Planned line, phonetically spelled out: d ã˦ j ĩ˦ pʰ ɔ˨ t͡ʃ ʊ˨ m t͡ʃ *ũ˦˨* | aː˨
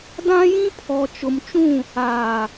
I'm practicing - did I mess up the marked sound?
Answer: no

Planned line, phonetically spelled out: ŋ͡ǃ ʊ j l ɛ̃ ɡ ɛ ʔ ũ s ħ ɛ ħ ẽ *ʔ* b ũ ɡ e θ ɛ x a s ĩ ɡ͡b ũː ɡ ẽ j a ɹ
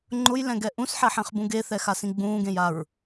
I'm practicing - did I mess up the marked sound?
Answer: yes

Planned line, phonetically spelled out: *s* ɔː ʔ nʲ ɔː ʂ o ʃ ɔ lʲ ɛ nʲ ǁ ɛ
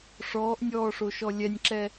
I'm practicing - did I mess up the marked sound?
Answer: yes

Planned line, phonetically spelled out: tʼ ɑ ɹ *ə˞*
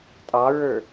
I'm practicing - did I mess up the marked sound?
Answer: no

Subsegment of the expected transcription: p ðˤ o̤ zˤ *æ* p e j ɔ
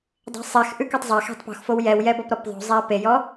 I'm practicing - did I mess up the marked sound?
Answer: no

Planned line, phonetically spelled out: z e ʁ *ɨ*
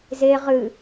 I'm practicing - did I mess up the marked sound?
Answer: no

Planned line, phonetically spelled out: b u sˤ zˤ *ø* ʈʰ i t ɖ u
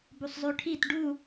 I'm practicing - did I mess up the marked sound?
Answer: yes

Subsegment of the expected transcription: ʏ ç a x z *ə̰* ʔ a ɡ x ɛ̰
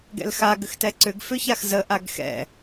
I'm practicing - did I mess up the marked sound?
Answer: yes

